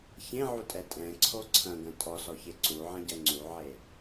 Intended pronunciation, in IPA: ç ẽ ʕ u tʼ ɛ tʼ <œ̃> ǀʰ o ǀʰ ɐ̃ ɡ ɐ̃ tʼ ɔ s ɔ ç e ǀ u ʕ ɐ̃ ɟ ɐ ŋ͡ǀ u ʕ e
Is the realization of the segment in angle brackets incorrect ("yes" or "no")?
yes